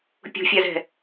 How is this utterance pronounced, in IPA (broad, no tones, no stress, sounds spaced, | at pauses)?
pʲ ṳ fʲ a z ɛ̤